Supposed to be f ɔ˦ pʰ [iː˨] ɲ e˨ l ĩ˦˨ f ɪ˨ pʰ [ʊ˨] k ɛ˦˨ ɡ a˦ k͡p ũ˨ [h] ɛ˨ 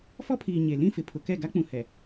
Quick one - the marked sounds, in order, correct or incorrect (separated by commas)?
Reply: correct, correct, correct